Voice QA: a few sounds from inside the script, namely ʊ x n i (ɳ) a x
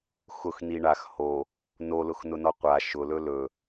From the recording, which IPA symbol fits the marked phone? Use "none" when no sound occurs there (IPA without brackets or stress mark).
ɳ